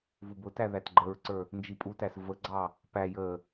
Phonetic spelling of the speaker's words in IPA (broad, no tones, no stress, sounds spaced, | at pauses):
v u b ʊ t æ ð æ t ɡ͡ǃ ə ɹ ǀ ə˞ | n d͡ʒ i pʼ u t æ s v ə ɡ͡ǀ ɑ | p æ j ə